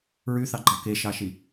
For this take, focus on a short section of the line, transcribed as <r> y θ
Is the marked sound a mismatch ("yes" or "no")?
yes